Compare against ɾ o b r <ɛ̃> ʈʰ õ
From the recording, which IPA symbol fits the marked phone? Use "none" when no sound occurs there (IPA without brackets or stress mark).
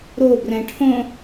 ɛ̃